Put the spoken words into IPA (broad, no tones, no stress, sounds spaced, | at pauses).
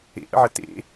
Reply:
ḛ ʔ ə̰ ʕ ə t ḛ